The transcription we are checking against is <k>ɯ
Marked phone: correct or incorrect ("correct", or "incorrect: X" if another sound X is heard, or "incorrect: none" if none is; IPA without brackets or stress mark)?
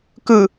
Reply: correct